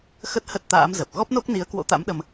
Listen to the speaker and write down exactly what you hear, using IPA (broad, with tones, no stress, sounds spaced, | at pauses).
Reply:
x ə˦˥ t̚ h ə˦˥ t̚ t̪ a̰ː˧˥ m z ə˨˩ p̚ ɣ ɔ˦˥ p̚ n o˦˥ k̚ n i˨˦ ə̯ k w o̰˧˥ t̪ a̰˧˥ m ɗ ə˧ m